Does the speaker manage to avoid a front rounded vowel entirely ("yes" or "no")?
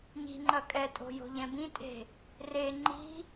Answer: yes